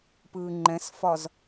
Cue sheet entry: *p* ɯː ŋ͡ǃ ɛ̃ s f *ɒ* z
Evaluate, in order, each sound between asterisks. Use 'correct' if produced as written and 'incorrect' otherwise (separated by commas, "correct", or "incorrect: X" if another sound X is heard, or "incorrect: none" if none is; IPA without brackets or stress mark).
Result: correct, correct